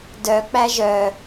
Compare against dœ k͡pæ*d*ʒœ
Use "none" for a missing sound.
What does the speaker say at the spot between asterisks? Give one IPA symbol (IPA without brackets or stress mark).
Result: none